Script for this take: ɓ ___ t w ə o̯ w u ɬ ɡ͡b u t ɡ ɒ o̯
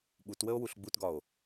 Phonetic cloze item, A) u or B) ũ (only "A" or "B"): A